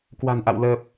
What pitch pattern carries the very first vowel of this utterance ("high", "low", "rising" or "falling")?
low